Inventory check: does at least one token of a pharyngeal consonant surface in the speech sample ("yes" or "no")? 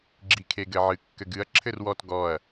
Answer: yes